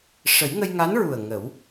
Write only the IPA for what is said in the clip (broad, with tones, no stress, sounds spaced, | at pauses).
ʂ ə˨˩˦ j ŋ ə˧ j ŋ a˧˥ n ɹ u˨˩ ə̯ ŋ ə˨˩˦ w